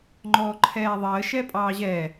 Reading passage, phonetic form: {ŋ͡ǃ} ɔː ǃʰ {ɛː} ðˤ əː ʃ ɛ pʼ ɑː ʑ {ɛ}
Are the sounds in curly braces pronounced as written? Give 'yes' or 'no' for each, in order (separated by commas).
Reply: yes, yes, yes